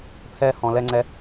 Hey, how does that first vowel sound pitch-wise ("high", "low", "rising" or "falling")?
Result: high